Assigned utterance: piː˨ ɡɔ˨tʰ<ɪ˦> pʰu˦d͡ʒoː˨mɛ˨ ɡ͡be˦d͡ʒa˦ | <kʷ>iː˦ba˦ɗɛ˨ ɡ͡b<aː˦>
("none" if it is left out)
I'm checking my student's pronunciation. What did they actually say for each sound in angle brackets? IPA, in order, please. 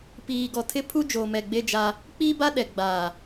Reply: ɪ˦, k͡p, aː˨

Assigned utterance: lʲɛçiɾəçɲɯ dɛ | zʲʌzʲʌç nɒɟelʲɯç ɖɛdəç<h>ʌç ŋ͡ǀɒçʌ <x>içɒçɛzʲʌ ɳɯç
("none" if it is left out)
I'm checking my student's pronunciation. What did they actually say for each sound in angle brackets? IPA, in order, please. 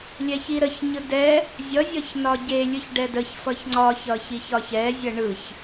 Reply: f, ç

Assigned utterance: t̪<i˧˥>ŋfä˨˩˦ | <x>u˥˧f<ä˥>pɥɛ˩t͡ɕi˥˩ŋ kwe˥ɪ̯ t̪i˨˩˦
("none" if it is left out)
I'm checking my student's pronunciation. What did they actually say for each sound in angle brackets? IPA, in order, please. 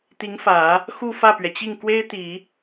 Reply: i˧˥, x, ä˥˩

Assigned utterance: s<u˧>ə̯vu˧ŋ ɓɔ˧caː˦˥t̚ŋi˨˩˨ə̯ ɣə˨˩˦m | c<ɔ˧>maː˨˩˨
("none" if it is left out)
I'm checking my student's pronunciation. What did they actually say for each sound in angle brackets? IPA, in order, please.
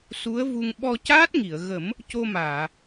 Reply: u˧˥, o˧

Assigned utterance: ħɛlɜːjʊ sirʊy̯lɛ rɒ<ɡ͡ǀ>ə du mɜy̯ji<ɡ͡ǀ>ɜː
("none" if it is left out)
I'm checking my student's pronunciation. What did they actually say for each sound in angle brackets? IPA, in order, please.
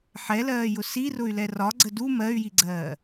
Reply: ɡ͡ǀ, ɡ͡ǀ

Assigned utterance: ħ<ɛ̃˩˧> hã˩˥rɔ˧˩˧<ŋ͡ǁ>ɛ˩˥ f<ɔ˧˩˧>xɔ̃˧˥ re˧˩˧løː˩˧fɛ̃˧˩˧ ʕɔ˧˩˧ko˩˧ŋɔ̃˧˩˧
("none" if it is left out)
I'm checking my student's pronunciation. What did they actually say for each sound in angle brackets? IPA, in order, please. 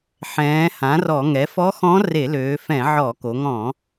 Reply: ɛ̃ː˩˧, ŋ, ɔ˧˥

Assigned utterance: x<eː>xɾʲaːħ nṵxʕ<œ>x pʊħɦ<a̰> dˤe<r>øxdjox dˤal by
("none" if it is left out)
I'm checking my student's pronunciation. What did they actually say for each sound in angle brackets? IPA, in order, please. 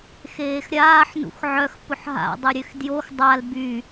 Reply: eː, œ, a̰, ɾʲ

